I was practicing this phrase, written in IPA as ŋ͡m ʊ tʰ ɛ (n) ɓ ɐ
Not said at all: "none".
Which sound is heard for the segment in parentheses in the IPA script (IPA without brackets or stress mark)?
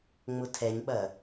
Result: ɲ